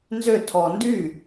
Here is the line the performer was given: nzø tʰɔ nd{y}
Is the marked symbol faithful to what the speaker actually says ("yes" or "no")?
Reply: yes